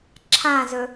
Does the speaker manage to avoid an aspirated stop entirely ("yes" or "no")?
no